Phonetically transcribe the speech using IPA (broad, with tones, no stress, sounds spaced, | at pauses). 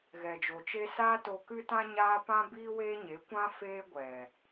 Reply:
ɣ ɛ˨ d͡ʒ o˨ t͡ʃ e˦ s aː˦ t o˧ k ɨ˦ t ã˦ ɲ aː˦ p ã˦ b iː˦ w eː˦ ɲ e˨˦ kʷ ã˦ f eː˦ ɡʷ ɛ˨